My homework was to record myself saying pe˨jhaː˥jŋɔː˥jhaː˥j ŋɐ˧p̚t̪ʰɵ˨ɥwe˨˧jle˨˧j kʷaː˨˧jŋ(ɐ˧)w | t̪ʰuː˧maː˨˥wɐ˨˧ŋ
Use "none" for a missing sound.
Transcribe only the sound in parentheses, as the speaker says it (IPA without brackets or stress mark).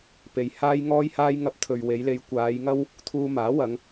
ɐ˥